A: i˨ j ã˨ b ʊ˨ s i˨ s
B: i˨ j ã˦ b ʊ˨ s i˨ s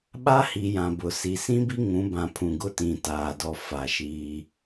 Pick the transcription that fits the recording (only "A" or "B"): A